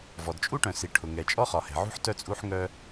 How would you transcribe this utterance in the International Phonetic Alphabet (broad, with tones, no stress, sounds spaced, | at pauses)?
v ɔ˩ d t͡ʃʼ u˥ ʈ œ̃˩ s i˩ ʈʰ ʊ˩ ŋ ɛ˩ t͡ʃʼ ɔ˥ χ ɒ˩ h ɛ̤˩ ʕ ṳ˥ ħ t œ˥ t͡sʼ u˥ ħ ŋ œ˥